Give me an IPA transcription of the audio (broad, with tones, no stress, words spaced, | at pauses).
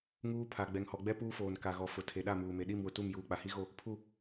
ŋuː˦pʰa˨ ɡ͡bɛ˨ŋhɔ˨ɡ͡bɛ˦ puː˦foː˨n ka˨ɣɔ˨ fʊ˨ tʰe˨ɗa˦˨muː˨me˨ ɗi˦˨mwʊ˨ tu˦˨mjuː˨ k͡pa˨hi˦ɣo˦˨ | pʰu˦˨